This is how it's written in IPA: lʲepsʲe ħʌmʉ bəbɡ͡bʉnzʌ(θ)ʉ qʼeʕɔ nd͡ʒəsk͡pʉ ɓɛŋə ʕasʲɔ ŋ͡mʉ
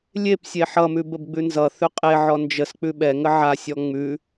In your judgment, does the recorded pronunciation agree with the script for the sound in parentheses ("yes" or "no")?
yes